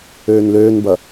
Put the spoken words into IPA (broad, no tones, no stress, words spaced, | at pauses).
øːnløːnbɐ